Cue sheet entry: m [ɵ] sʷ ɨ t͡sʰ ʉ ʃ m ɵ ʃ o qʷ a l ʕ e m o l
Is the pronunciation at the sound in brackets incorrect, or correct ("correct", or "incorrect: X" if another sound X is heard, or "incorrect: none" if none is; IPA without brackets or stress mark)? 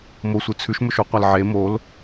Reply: incorrect: o